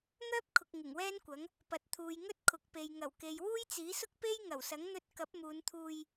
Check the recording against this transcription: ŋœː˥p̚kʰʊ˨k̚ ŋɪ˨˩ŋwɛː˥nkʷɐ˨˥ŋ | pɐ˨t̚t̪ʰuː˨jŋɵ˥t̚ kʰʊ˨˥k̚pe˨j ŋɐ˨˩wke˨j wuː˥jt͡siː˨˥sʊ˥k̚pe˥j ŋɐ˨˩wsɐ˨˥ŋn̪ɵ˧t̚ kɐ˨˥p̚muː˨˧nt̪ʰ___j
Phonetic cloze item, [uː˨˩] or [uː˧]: uː˧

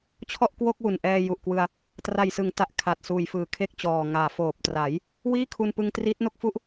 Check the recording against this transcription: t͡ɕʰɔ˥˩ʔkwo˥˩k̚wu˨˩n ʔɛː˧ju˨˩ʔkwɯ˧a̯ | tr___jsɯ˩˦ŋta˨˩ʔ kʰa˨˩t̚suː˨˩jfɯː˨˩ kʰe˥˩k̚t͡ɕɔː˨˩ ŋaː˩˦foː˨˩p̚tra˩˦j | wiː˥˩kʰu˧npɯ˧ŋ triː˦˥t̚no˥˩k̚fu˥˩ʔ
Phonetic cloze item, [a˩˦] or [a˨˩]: a˨˩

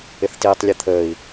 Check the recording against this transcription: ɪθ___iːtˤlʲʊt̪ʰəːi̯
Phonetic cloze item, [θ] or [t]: t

